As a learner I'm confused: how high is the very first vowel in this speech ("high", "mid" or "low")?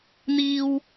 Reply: high